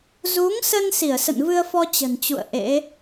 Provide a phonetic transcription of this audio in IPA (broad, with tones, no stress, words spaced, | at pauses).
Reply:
zu˨˦ŋsə˧n si˧˩ə̯sə̰˧˨nvɨ˧ə̯fɔ˧ t͡ɕə̤˨˩nt͡ɕṵ˧˨ə̯ ʔḛ˧˥